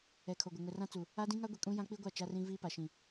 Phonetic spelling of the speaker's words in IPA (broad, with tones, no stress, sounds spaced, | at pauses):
ɛ˨ kʰ o˨ ɡʷ ɪ˨ ŋ ʊ˨ r ã˦ t͡s u˨ | a˦ d ĩ˦ ŋ a˦ ɡʷ i˨ kʼ ũ˦ j ã˦ k͡p i˦ ɡʷ a˦˨ t͡ʃ a˦ r ĩ˦ v iː˦ p a˨ ʃ ĩ˨